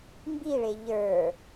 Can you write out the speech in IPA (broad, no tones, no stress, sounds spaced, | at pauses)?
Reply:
m b i ɭ e ʎ ə˞